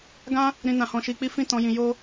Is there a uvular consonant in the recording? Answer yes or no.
no